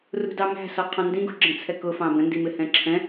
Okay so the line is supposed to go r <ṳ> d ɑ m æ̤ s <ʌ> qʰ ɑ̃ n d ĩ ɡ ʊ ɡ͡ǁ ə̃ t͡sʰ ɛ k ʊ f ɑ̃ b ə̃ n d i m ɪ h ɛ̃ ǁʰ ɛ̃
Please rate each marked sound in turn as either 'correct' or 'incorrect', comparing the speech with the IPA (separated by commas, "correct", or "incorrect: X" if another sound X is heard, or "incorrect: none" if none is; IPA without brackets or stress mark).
correct, incorrect: ɒ